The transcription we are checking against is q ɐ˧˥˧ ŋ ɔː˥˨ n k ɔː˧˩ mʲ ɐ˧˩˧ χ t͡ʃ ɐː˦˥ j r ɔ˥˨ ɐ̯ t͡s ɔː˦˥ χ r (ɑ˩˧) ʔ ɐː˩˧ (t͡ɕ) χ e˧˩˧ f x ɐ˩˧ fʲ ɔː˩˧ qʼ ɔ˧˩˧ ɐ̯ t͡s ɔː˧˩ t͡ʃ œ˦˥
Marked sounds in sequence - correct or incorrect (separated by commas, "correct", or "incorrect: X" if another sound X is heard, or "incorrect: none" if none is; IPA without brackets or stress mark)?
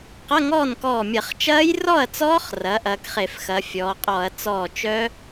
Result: incorrect: ɐ˩˧, incorrect: k